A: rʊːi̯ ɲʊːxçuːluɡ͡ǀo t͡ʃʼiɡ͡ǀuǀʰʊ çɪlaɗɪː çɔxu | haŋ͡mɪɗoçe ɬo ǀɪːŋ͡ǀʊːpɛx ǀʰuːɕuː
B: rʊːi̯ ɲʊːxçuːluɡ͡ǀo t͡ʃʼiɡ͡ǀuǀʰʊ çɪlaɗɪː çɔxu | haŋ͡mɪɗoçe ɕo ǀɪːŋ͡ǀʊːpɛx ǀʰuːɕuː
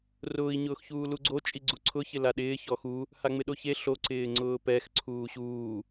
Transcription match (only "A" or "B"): A